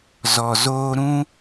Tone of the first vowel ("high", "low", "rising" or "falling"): low